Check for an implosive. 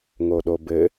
present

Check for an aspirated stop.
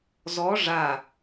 absent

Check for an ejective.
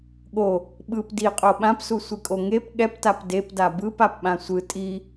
present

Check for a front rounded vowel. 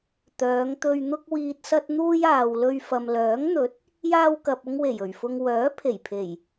present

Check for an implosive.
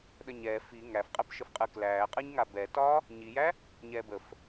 present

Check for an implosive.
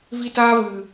absent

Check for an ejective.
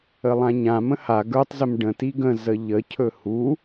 absent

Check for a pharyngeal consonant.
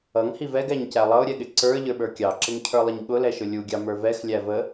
absent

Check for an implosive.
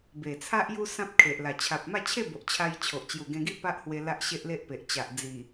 absent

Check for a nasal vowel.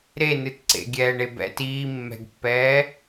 absent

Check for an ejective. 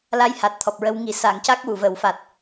absent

